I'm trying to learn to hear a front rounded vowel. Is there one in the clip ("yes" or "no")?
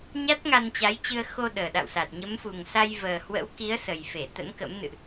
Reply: no